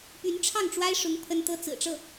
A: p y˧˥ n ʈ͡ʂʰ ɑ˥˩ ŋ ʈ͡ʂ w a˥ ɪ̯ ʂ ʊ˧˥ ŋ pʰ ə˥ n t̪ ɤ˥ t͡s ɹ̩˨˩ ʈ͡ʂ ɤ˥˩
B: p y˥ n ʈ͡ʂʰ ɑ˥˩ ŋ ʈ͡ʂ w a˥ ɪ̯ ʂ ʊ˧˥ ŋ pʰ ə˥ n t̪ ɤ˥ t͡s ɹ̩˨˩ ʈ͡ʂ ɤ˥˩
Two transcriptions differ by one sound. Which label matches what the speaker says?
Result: A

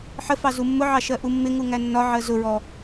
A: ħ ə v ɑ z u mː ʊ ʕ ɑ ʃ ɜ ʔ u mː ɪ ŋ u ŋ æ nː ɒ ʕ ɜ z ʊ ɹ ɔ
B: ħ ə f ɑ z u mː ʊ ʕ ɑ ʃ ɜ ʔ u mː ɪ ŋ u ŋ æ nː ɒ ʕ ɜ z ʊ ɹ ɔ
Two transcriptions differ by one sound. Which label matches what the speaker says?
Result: B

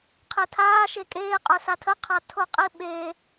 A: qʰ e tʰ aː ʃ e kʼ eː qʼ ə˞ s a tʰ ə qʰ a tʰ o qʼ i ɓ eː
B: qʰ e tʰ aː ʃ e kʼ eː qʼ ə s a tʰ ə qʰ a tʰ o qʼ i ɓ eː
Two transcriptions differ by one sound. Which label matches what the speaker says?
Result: A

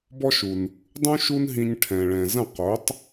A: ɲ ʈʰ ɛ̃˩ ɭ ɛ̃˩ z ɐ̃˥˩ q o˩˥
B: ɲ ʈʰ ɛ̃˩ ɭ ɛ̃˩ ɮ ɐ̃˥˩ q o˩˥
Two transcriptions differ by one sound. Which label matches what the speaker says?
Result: A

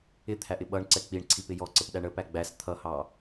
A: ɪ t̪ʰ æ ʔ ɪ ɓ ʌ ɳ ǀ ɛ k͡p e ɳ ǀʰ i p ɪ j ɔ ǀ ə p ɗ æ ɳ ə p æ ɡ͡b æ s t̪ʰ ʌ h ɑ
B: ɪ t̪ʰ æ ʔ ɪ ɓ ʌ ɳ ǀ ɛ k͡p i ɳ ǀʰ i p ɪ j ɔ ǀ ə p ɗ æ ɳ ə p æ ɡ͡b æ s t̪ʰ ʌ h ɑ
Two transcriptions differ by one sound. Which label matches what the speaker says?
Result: B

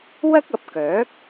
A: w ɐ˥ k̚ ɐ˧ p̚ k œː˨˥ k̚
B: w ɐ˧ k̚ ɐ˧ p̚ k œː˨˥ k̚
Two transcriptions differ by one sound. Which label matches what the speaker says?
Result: A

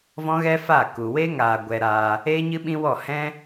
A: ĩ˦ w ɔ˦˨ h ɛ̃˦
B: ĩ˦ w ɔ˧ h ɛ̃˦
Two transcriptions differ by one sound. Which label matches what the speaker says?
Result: A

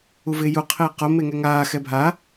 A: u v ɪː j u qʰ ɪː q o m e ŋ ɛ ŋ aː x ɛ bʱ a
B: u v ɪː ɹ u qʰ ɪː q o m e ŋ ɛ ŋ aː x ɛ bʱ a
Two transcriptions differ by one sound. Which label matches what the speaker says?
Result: A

